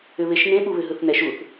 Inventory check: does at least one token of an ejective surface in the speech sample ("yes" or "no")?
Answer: no